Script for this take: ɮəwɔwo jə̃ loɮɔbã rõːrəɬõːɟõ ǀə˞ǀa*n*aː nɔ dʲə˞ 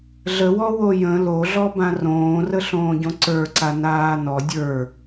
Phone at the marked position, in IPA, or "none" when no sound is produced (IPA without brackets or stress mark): n